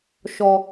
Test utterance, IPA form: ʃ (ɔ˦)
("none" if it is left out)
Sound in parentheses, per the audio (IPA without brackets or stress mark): ɔ˦